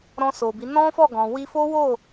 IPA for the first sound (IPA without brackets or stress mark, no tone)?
ɾ